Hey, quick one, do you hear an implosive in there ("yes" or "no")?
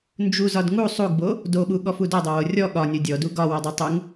yes